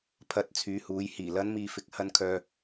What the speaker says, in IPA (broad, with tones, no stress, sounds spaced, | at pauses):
pʰ ɐ˧ t̚ t͡sʰ yː˨˧ h uː˨˧ j h iː˨˩ l ɐ˨˧ n m iː˨ f ɪ˨ k̚ h ɐ˧ n kʰ œː˧